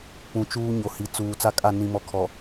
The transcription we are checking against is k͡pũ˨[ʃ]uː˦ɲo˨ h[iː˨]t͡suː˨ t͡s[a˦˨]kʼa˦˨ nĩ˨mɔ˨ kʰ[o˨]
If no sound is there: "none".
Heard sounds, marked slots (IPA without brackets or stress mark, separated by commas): t͡ʃ, i˨, a˦˨, ɔ˨